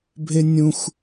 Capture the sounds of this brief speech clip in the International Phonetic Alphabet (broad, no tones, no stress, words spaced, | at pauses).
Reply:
bʱenʲũx